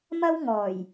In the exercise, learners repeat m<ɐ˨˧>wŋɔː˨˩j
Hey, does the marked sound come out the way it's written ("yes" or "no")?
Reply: no